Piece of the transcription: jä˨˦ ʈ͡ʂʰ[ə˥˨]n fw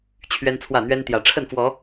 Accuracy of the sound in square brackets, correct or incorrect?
correct